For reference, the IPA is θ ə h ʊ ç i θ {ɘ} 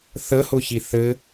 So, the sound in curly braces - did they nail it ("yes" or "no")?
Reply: yes